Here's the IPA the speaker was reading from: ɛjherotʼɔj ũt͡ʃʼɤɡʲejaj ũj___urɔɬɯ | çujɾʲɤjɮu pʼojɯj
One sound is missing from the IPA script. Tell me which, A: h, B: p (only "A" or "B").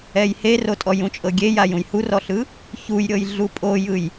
A